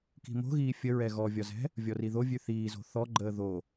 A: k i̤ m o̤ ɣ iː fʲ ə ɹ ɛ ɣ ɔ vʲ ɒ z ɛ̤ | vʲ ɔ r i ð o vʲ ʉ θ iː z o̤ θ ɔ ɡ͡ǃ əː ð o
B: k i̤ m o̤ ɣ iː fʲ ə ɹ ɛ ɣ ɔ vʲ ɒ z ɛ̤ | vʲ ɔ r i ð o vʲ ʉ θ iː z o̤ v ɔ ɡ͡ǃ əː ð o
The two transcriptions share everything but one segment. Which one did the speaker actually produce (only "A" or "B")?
A